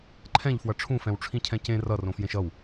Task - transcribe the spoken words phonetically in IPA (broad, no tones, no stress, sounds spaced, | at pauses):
ǃʰ ɛ̃ ʎ f w ʌ ʈ͡ʂʰ ũ f ɛ̃ w ʈ͡ʂʰ ĩ cʰ ɛ̃ c ẽ r ʌ r õ f j ẽ ʃ ʌ w